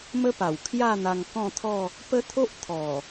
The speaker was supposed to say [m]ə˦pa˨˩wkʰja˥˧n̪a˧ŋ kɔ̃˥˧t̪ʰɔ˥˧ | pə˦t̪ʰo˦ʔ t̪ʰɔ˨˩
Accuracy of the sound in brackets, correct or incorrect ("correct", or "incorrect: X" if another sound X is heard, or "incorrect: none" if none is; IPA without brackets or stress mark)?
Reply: correct